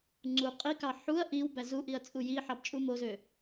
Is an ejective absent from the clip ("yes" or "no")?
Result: no